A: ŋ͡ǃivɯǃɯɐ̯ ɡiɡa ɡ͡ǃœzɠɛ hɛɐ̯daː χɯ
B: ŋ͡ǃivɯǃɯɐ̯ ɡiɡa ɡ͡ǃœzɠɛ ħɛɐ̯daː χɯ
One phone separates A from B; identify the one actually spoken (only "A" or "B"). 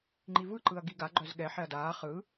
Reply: B